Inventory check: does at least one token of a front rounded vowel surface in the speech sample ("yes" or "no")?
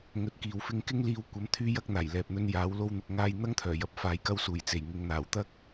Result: yes